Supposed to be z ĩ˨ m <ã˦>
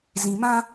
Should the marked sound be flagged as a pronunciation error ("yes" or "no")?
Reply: no